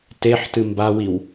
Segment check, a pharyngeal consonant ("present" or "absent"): present